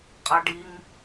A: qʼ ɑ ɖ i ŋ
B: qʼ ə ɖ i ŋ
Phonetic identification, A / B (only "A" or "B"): A